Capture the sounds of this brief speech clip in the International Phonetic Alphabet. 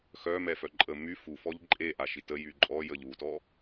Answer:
xœmɛfœ ǃʼə my fufɔʎ ǃʼeʔaʃit əjy ǃʼɔjəʎ utɔ

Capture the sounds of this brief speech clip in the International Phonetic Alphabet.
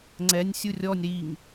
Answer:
ŋ͡ǀɛnʲsʲu rʲɔnʲ ɾiŋ

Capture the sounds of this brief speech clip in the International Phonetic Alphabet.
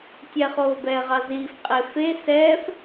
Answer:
tʲɛχoːbɛːʁɑ ziːfqʼe fe sɛːf

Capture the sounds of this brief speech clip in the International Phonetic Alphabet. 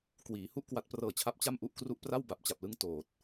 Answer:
kwiː˩˦hu˥˩ʔ kwa˦˥t̚prɤː˧t͡ɕʰa˦˥p̚ t͡ɕa˥˩mʔu˥˩ʔkru˥˩ʔ pra˥˩wba˨˩p̚t͡ɕa˨˩p̚lɯ˦˥ŋ toː˨˩t̚

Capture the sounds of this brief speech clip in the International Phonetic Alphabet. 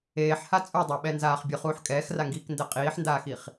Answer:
eːħha t͡sʼudˤaɓɛnzaːχ bʲʊχuːħ kʼɛːxraŋɡiːkndɛ qʼiːħndaːxiχ

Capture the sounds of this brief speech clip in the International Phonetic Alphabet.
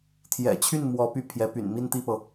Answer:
t̪ʰjɛ̰˨˩t͡ɕʰy˥˩n mwɔ˧˥ py˥˩ pʰjɛ˧˥py̰˨˩n mi˥˧nt̪i˥˩pɤ˩

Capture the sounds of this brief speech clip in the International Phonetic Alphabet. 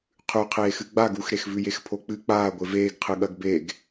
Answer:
qʰʉqʰeːxɨ ɡ͡baɡ uxɾexvʉ jexpʰok͡pɨ k͡paː ɡʷeveːɡqʰɨ ɠɐɡbeɡ

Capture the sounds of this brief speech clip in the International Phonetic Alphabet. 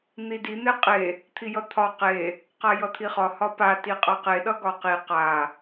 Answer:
n̪idi n̪eqʼe | t̪ʰijʌt̪ʰɒ qe | qajʌt̪ʰiχɒ hɒpa tiqʼʌqe ɗʌɡɒqi qa

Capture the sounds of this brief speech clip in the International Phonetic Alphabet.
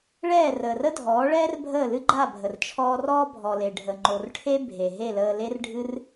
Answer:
ɭɛː˦˨ rəː˨rə˦dʱɔː˨˦ɭɛː˦r bʱəː˦˨lɨ˦ɡ͡ǃa˦˨bʱə˨r t͡ʃʰɔː˧rɔː˦bʱɔ˨ le˨ɖʱə˨ ŋ͡ǃo˨rʈʰe˦ bʱe˨ɦe˦˨ləː˧ le˦rɖʱɨ˦r

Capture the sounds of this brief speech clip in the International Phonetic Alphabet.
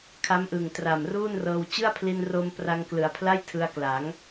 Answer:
kʰa˦˥mʔɯ˨˩ŋ tra˨˩mruː˥˩nrɤː˧w t͡ɕɯ˥˩a̯pʰli˧nro˧m pra˧ŋklɯ˩˦a̯pʰla˥˩j tʰɯ˧a̯ kla˩˦ŋ

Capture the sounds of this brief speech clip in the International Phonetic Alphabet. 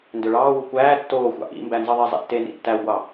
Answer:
ndøɭɑːwu kʷæː tːoːxʷɑ̰ ʔḭmbæ nzɯðˤizˤḛ tːenḭ tːæwɡʷɑː

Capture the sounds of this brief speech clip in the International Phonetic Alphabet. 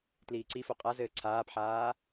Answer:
tliːǀifo qʼazɘː ǀʰaːpħaː

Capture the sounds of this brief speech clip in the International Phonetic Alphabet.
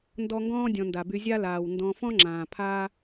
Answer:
ndɔ˦ŋɡɔ̃ː˥dʲɔ̃˨nda˩ by˨zʲa˦laː˩w ndɔ̃˨fɔ̃˦ŋ͡ǁãː˩ pʰaː˥

